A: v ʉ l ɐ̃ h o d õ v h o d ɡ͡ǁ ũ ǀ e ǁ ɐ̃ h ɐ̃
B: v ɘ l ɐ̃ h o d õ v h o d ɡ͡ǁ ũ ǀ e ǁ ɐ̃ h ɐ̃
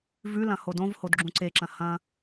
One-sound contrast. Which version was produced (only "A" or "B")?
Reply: A